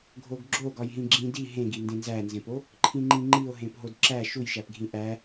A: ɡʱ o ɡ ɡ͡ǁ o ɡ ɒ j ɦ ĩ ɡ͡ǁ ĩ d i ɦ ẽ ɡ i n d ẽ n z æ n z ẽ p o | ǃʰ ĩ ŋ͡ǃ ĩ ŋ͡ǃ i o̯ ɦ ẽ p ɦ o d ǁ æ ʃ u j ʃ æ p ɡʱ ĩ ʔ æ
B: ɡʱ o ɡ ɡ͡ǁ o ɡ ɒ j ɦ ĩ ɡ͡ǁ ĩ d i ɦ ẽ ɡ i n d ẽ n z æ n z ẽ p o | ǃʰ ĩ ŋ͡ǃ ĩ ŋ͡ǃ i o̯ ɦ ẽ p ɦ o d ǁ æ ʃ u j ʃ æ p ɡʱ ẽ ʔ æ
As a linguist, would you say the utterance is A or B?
A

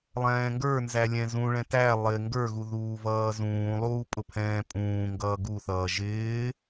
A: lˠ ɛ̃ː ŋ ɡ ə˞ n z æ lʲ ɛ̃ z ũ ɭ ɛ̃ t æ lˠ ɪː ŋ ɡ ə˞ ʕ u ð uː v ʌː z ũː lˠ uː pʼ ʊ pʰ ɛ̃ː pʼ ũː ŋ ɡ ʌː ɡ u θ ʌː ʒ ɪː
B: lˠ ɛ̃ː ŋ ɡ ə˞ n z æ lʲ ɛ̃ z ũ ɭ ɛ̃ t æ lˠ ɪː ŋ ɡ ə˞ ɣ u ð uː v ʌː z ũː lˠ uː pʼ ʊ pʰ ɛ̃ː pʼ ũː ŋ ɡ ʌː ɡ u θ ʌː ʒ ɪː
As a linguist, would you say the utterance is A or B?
B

